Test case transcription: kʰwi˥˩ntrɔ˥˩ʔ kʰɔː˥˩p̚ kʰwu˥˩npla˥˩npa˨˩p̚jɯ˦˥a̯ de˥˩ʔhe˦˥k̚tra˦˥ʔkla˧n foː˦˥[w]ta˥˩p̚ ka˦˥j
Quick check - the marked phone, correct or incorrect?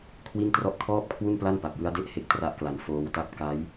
correct